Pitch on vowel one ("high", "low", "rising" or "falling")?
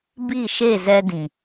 falling